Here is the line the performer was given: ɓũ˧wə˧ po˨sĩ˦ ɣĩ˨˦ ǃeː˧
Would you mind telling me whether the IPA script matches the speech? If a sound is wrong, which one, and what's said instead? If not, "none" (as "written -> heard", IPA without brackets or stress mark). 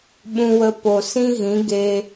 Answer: ǃ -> ɡ